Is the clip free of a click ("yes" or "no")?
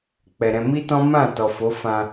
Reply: yes